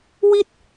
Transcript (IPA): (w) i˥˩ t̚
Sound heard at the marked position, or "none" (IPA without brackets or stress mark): w